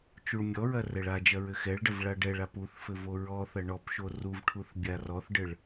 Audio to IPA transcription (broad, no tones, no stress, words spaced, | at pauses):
t͡ʃuɭmʲɔɹɐ rɛɭad͡ʒɐ ɹɘxɛɭɖɐv ɭaɖɛɭap uθfɘ voɹɔθɐ ɳɔp ʃoruvʈʰuθ bʲarɔθɖɘɭ